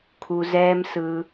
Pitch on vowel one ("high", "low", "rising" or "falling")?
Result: low